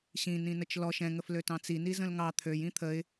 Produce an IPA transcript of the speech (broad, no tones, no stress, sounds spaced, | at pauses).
ɕ ĩ n ĩ n ə t͡ʃ l ɔ ʃ ɛ̃ ŋ ə f l ø t ɑ̃ t͡s i n i z ə̃ l ŋ ɑ t̪ʰ ø j ĩ t̪ʰ ə ɪ̯